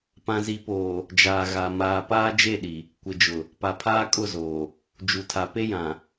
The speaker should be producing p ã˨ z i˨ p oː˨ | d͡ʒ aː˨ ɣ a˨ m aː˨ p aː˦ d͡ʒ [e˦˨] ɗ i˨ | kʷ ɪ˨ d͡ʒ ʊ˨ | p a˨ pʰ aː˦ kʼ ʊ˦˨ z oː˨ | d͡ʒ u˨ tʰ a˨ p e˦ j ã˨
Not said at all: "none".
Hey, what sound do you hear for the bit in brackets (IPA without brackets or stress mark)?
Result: e˦˨